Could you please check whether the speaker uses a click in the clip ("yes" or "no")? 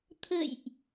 no